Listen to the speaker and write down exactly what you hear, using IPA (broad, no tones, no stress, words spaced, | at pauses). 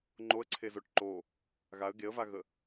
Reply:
ŋ͡ǃoə̯ǀʰezoʈ ǃo | ɣaə̯ ɡeə̯vaɣə